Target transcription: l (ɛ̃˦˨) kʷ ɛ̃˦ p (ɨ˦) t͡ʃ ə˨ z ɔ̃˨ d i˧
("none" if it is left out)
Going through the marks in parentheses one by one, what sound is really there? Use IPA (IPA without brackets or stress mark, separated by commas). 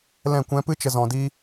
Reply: ɛ̃˦˨, ɨ˦